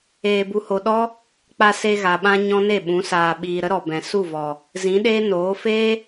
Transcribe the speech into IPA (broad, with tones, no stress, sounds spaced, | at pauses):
eː˧ b u˧ h o˧ ɗ ɔ˦ | k͡p a˧ s e˧ ɣ a˨ ɓ ã˧ ɲ ɔ̃˦ n e˦˨ ɓ ũ˨˦ s aː˧ ɓ iː˧ ɾ ə˦ ɾ ɔ˨ b ɛ̃˨ s u˦˨ v ɔ˨ | z ĩ˨˦ ɗ eː˦ n oː˨˦ f eː˦